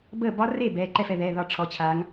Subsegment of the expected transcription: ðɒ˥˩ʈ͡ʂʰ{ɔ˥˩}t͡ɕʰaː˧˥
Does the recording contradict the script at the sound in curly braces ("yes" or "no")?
yes